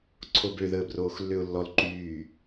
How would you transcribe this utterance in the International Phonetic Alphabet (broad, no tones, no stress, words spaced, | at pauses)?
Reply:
ǀʰobø ðəːbroːxlːøʊ̯lːɔl ǃyː